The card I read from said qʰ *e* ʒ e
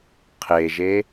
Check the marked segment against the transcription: correct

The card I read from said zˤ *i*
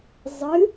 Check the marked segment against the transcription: incorrect: ɨ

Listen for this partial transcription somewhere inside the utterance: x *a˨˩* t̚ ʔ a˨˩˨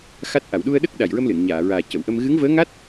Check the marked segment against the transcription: incorrect: a˦˥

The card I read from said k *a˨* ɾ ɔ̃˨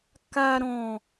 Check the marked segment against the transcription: correct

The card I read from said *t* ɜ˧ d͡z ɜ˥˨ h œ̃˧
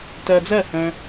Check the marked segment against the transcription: correct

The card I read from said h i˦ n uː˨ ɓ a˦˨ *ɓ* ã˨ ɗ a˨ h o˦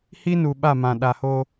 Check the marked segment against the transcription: incorrect: m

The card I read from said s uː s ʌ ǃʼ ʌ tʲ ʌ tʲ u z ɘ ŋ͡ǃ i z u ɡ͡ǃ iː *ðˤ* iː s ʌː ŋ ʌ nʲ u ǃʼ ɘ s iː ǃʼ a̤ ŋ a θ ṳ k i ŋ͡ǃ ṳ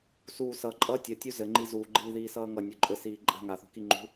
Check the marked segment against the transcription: incorrect: ð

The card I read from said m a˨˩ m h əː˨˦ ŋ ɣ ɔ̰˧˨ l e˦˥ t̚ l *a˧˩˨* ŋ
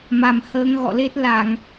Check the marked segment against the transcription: correct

